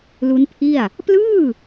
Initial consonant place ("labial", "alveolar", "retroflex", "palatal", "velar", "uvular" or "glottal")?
alveolar